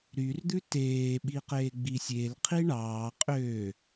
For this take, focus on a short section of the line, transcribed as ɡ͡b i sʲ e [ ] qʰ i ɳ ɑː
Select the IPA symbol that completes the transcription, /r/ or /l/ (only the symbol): l